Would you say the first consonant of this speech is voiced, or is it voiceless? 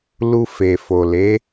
voiced